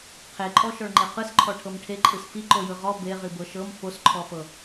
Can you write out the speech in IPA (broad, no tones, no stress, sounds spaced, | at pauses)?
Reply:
qʰ e ǃʼ ɔ ʃ ɔ ɭ ŋ͡ǃ e q ɯ s ǃʰ ɔ ʈʰ ɤ m ʈʰ e ǃʼ ɯ s f i ǃ o j ɯ ʁ ɔ b e ʁ i b ɤ ʃ ɤ m f o s ǃʰ ɔ f ɤ